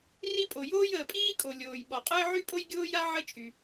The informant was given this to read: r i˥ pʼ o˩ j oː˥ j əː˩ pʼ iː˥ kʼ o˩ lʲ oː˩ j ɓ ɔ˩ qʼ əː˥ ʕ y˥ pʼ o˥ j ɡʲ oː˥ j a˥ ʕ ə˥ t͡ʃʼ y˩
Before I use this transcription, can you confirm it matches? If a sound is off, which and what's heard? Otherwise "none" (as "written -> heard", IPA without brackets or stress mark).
none